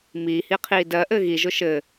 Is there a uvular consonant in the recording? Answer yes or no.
yes